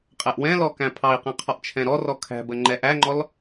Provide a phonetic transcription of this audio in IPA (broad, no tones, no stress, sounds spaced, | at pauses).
qʼ ɛ ʔ w ɛ̃ l ɔ k æ̃ pʰ ɑ i̯ q ɛ̃ qʰ ɔ ʔ t͡ʃʰ ɛ̃ ɾ ɔ r ɔ kʰ æ̤ b ə ŋ͡ǃ ɛ ʔ æ ŋ͡ǃ ɔ l